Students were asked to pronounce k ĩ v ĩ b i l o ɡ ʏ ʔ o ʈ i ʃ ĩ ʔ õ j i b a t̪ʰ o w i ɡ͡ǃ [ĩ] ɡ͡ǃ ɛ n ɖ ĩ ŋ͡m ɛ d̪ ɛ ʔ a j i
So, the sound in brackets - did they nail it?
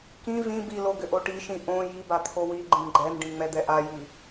yes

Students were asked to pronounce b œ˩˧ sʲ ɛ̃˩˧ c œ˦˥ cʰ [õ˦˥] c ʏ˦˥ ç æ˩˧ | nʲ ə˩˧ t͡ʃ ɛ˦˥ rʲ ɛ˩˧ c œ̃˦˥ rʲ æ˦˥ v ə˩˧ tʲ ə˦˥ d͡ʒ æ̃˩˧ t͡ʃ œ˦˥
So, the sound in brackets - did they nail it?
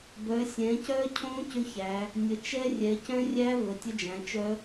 yes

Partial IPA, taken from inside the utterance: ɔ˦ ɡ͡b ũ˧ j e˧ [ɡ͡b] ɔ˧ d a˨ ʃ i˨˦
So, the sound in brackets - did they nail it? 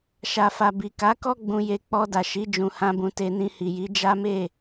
no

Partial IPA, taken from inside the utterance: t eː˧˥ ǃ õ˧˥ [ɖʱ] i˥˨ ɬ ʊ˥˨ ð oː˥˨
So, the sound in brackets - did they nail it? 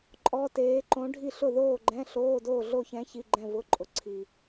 yes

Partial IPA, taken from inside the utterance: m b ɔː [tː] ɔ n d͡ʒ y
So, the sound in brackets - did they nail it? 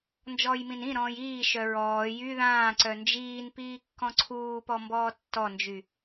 yes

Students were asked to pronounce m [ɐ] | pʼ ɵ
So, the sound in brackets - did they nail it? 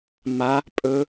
no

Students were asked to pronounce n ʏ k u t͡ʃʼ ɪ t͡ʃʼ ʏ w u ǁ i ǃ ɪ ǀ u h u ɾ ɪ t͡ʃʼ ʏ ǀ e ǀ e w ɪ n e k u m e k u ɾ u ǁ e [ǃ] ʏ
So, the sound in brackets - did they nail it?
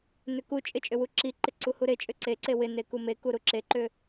yes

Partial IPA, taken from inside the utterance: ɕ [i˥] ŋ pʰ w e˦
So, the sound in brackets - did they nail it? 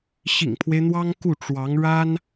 no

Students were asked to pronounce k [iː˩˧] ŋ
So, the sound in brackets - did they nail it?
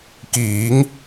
yes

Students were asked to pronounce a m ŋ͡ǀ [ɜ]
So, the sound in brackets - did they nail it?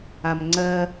yes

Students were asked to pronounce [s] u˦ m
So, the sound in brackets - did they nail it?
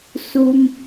yes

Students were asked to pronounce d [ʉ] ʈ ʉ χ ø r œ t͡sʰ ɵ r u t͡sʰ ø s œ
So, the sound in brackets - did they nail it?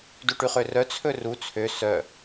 no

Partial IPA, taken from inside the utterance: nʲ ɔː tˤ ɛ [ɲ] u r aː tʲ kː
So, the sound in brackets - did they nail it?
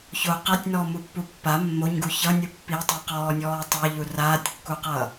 no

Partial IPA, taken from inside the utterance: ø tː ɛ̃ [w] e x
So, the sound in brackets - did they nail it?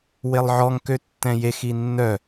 no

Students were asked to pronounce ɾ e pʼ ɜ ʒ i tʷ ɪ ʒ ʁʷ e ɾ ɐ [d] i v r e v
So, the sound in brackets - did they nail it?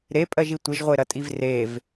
no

